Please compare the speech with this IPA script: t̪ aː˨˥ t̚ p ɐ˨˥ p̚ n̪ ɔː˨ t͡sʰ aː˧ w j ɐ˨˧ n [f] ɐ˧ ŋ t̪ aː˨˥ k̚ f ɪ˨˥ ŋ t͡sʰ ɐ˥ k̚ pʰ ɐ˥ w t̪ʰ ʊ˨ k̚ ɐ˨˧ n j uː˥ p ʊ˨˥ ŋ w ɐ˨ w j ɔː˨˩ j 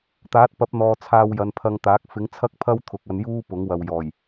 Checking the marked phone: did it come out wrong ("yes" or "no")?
yes